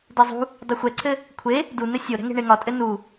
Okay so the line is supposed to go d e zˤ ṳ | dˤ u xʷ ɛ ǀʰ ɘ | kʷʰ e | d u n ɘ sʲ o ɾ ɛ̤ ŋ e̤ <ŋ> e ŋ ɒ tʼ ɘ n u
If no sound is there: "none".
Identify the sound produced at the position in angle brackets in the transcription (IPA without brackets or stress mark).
ɳ